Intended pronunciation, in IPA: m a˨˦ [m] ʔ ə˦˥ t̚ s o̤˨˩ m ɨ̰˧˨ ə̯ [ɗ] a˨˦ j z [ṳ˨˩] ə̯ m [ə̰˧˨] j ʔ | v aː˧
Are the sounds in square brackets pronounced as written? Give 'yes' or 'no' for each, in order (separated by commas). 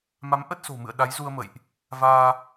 yes, yes, no, yes